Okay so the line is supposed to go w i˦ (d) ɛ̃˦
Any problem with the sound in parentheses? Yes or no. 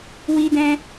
no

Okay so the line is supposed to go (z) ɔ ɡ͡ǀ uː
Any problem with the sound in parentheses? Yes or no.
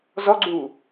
no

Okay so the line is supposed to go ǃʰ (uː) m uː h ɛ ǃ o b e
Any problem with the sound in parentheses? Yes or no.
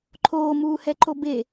yes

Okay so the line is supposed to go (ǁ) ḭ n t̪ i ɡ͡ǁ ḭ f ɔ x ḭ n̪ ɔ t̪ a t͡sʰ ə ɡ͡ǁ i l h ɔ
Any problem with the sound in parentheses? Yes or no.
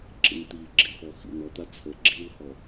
no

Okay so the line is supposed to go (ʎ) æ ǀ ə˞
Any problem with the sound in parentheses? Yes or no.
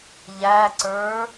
no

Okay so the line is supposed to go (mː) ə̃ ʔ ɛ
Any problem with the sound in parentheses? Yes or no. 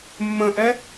no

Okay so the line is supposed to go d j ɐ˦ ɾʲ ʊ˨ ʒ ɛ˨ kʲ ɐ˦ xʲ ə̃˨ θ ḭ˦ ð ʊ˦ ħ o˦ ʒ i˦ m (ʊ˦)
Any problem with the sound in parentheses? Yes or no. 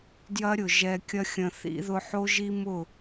yes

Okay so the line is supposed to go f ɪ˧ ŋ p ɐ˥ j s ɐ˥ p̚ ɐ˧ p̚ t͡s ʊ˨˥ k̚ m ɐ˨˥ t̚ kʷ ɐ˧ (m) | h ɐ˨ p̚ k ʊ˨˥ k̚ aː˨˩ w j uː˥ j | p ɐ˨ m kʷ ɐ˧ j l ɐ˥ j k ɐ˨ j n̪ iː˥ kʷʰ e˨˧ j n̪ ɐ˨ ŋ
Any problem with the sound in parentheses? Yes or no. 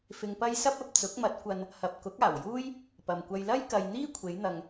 yes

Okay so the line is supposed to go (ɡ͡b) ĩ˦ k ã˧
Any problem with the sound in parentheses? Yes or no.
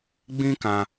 no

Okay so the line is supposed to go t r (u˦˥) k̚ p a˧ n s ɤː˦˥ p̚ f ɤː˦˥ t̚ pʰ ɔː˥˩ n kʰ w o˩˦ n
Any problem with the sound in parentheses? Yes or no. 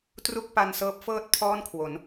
yes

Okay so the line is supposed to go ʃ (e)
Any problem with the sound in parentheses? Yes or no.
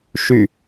yes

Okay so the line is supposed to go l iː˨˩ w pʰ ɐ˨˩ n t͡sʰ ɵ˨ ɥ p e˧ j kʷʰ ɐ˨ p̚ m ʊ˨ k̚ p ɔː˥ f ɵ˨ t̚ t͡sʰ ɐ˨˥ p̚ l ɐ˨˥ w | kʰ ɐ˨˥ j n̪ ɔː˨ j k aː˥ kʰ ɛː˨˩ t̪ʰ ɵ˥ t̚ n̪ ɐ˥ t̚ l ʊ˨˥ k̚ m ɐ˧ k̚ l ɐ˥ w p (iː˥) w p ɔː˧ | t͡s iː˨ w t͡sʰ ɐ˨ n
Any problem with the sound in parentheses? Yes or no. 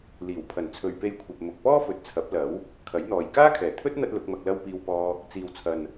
yes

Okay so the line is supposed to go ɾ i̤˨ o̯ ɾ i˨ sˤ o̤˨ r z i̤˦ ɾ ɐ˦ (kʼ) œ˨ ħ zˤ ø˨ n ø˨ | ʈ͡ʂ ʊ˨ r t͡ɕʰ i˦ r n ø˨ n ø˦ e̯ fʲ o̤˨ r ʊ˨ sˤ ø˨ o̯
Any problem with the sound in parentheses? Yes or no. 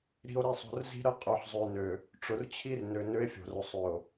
yes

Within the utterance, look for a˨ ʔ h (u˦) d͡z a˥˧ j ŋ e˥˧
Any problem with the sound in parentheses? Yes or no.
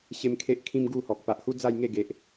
no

